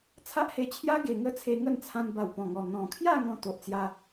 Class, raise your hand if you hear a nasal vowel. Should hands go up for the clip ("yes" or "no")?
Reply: yes